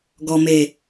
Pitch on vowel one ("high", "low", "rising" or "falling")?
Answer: low